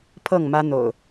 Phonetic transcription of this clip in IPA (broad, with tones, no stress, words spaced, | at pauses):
pʰɤ˥˨ŋmä˦n̪o̰˨˩ʊ̯